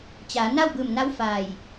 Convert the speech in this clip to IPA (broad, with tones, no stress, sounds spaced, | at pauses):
t͡ɕ aː˩˧ n a˥˨ w b ɯː˧˩ m n a˧˥ w f aː˧˩ j